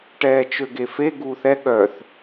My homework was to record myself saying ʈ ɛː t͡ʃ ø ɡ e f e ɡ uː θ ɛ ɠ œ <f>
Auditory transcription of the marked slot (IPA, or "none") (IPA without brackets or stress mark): θ